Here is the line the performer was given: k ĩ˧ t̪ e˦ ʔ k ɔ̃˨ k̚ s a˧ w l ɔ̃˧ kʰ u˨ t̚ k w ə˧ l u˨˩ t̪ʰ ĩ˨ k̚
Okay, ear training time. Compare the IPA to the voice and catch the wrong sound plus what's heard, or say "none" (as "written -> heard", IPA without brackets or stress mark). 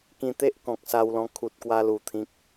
ə˧ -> a˧